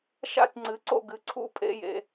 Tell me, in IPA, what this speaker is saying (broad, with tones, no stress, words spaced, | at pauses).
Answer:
ʃa̰˥˨tʲŋ͡ǀɨ˩˥ǀo̰˥˨ ɡɨ˩˥ǀʰṵ˥˨ pʼḛ˧˥˧jḛ˨